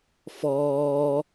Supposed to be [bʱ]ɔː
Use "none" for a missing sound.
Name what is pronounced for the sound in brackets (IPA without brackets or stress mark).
f